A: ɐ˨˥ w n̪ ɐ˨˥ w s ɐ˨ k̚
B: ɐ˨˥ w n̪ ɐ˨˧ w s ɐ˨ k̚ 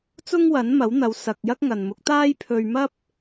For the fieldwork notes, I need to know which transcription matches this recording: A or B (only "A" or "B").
B